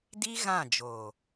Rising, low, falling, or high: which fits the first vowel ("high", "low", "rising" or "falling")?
high